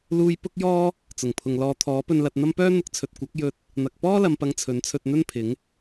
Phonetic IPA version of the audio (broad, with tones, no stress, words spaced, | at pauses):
luː˧j pʊ˥k̚jɔː˥ | t͡sʊ˨˩ŋpʰʊ˨ŋ lɔː˨ t̪ʰɔː˨˥pɵ˧nlɐ˧t̚n̪ɐ˥m pœː˥n̪ʊ˧k̚t͡sʰɵ˨t̚ kʷɐ˨˥k̚jɵ˧t̚ | n̪ɐ˨k̚pɔː˥lɐ˨mpɐ˨˧ŋ t͡sʰɵ˨˥nt͡sʰɵ˧t̚ n̪ɵ˥npʰɪ˨˥ŋ